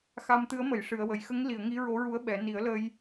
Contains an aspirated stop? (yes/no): no